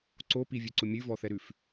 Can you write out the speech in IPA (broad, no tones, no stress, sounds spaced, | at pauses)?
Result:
ǀ o p i vʲ ʉ ǀ ʊ mʲ ʉ v ɔ θ ɛ ɾ ʉ f